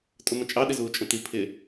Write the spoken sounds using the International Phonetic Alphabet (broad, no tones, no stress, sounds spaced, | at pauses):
tʼ ʊ m ə̃ t͡ʃʼ ɑ ɗ ɪ z uː t͡ʃʼ ə̃ t i pʰ ɪ